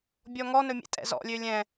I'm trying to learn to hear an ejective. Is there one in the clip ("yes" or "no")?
yes